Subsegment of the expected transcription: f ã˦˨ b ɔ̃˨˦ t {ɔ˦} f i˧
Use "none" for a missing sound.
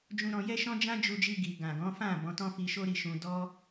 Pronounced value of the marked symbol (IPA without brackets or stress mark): ɔ̃˦